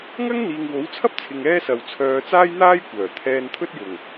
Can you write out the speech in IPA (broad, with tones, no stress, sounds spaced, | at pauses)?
ŋ ɐ˥ ŋ n̪ iː˨ ŋ w o˨˥ w t͡sʰ ɐ˥ p̚ t͡sʰ ɪ˨ ŋ ɛː˥ s ɐ˨ w t͡sʰ œː˨˧ t͡s aː˥ j n̪ aː˥ j kʷ œː˨˩ t̪ʰ ɛː˧ n t̪ʰ ɵ˥ t̚ j ʊ˨˩ ŋ